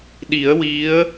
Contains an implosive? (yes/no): yes